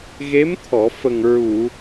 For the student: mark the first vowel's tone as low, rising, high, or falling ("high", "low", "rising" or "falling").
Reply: rising